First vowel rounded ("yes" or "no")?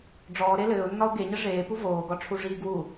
yes